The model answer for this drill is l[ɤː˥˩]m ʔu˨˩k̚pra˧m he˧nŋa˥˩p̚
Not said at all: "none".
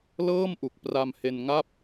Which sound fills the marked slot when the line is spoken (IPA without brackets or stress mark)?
ɤː˥˩